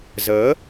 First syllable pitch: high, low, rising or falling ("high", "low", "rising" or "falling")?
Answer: rising